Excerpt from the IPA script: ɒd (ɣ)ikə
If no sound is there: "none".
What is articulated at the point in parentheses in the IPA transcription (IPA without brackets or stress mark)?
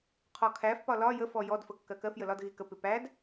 ɣ